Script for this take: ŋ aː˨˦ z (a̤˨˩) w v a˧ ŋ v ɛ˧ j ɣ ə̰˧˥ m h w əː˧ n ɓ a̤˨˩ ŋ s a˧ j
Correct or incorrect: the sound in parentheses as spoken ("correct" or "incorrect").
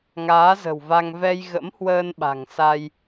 incorrect